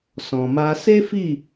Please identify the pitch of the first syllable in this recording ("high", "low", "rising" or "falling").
low